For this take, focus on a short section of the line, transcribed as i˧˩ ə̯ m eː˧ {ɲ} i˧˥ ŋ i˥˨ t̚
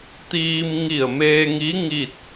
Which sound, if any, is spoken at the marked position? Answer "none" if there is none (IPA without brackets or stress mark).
ŋ